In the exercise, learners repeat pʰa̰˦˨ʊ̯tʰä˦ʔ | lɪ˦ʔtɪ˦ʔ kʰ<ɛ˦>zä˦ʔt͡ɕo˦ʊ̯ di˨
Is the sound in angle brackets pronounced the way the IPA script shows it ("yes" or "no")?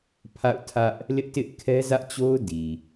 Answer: yes